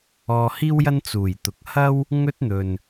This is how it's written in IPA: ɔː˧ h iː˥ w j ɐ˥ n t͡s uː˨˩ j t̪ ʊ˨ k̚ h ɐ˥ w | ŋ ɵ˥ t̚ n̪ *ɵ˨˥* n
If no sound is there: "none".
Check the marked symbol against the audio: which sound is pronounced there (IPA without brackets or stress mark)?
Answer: ɵ˨